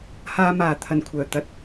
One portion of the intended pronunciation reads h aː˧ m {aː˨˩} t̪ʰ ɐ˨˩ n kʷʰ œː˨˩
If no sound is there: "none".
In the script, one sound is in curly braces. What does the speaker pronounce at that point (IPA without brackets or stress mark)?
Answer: aː˨˩